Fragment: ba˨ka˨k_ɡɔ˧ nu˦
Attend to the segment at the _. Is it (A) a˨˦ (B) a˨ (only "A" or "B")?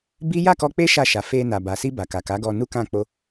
A